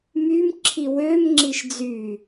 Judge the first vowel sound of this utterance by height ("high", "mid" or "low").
high